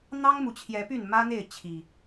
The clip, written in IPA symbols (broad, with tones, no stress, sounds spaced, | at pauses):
n̪ ɑ˦ ŋ m u˨˩ t͡ɕʰ j ɛ˨˦ p y˥˨ n m ä˦ n̪ e˥˨ ɪ̯ t͡ɕʰ i˨˩